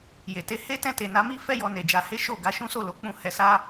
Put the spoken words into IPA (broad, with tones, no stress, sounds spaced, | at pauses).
j e˨ t e˧ h e˦ t ɛ̃˦˨ t e˨ n a˧ m i˦ f ɛ˦ j ɔ˧ n e˨ d͡ʒ a˧ h e˦ ʃ o˦˨ ɡ a˨˦ ʃ ũ˦ s o˦˨ l o˨˦ k͡p ũ˦˨ h ɛ˧ s a˦